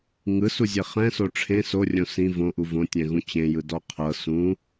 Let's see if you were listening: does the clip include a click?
no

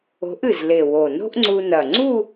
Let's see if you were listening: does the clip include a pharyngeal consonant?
no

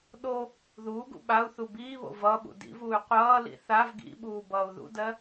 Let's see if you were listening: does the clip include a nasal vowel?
no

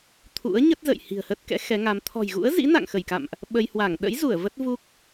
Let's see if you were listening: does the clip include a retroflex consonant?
no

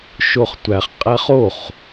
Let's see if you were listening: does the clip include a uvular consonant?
yes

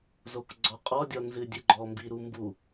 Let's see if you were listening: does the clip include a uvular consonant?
yes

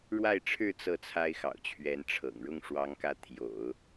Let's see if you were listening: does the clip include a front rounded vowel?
no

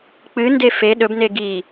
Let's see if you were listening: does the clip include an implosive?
yes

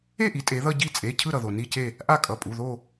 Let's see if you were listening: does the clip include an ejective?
yes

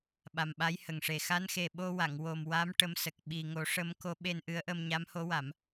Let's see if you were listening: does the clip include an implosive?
yes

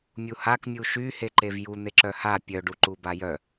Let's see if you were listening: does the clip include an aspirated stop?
no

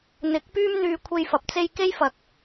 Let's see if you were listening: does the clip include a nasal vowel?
no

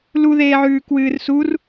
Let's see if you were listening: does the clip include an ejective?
no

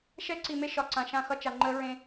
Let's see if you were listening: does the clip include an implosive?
no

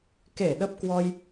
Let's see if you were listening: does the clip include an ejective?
no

